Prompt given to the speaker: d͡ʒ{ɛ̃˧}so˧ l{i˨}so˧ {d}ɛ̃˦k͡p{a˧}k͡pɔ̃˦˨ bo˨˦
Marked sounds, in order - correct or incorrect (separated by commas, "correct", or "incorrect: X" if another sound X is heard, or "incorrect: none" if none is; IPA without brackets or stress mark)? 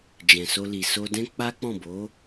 incorrect: ɛ̃˨, correct, correct, incorrect: a˦